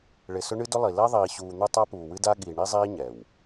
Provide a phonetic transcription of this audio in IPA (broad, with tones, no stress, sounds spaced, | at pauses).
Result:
ɭ ɪ˨ s ʊ˦ ɳ ɨ˦ d ʊ˦ lˠ i˨ l ɛ˦ ðˤ iː˨ ɕ uː˨ n̪ ʊ˦ tˤ a˦ p uː˨ w ɨ˦ d a˦ ɠ iː˨ ɳ i˦ zˤ iː˦ ɲ ɛ˨ w